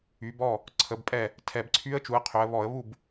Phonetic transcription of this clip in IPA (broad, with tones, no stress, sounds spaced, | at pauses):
y˩˧ b ɔ˥˩ | ǀʰ ə˩˧ b pʼ ɛ˥˩ | tʰ ɛ˨˩ b ǀʰ y˧˥ ə̯ t͡ʃ u˩˧ ə̯ qʰ ø˩˧ ə̯ β ɔ˧˩˧ ə̯ β u˥˩ b